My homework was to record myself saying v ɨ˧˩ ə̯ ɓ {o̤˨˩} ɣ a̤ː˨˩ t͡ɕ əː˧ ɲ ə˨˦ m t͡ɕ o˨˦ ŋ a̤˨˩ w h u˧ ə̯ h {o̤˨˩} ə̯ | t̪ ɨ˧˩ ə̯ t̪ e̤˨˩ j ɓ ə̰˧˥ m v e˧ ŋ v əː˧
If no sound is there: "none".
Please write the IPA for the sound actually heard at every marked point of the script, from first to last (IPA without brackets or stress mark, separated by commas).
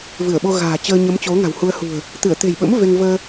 o˧, ṳ˨˩